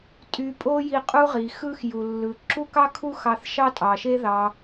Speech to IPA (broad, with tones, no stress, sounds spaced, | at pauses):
tʼ y˧ pʼ o˥ j i˧ qʼ u˥ ʁ i˩ x ɯ˥ x j u˩ lː ɯ˩ ǁ u˥ k ɑ˥ kʰ u˥ x ɑ˧ θ ʃ ɑ˥ tʼ ɑ˩ ʃ e˥ ð ɑ˧